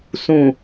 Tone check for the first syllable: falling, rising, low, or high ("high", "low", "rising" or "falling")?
low